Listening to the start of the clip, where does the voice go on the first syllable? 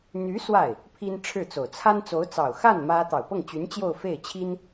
rising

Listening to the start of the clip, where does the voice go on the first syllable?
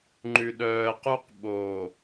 low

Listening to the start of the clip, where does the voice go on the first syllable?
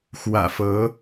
low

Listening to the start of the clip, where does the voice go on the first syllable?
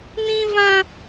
high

